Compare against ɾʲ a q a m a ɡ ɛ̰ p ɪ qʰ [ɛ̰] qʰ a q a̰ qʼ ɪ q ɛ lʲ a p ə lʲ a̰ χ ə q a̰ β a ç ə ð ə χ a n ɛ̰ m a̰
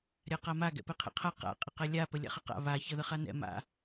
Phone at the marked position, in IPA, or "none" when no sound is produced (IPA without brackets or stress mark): ɛ̰